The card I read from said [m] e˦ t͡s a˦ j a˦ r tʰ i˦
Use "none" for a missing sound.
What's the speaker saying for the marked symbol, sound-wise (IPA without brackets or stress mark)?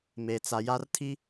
m